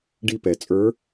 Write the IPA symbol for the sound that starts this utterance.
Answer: ɖ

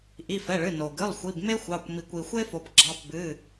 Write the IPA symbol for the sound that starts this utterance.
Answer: ʔ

